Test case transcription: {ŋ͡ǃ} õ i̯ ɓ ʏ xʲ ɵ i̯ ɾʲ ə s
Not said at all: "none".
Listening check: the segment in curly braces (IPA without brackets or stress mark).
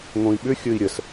ŋ